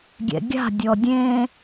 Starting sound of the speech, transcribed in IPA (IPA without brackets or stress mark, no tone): ɡʲ